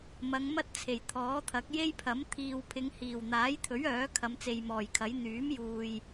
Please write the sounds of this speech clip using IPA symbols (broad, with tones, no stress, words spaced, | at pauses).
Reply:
mɐ˨˧ŋmɐ˥t̚t͡sʰe˨˩j t̪ʰɔː˨˥t̪ʰɐ˨˥k̚ je˥jpʰɐ˨˥m t̪ʰiː˨wpʰɪ˨˧ŋ hiː˨˩wn̪aː˨˥jt̪ʰɵ˨˥ɥ œː˨˥ kʰɐ˨˧mt͡se˨jmɔː˨˩jkʰɐ˨˥j n̪yː˨˥mjuː˨j